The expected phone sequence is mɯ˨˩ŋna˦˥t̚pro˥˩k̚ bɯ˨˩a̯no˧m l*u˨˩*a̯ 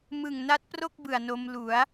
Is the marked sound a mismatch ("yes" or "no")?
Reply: yes